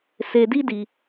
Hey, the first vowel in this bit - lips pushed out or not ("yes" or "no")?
no